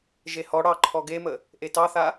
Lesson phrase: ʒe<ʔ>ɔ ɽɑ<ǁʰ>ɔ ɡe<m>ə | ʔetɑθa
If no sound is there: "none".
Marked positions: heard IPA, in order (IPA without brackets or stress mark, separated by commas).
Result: h, ǃʰ, m